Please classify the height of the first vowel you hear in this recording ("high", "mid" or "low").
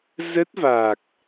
mid